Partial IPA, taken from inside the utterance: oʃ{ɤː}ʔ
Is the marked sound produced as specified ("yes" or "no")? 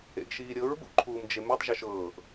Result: yes